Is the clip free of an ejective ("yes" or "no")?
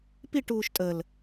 no